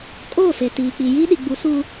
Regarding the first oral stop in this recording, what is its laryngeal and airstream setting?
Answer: ejective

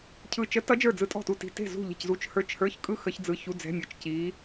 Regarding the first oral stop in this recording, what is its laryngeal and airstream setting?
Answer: aspirated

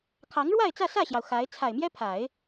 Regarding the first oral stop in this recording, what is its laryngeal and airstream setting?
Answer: aspirated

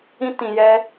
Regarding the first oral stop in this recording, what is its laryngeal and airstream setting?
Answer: plain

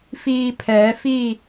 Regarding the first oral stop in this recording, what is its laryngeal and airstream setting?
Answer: aspirated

